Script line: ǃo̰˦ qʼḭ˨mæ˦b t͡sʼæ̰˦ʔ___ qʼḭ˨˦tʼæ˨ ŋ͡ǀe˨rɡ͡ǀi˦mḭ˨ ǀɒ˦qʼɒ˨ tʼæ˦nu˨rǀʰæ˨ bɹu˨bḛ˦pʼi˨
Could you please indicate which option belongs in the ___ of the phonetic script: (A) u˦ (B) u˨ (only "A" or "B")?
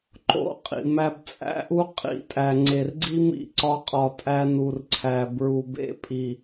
A